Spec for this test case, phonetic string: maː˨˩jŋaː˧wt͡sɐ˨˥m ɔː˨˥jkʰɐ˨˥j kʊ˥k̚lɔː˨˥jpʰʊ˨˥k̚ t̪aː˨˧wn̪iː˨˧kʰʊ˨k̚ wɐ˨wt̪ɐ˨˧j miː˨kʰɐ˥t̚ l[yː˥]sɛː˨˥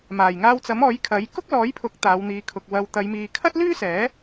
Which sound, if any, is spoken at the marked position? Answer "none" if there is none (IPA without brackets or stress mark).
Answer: yː˥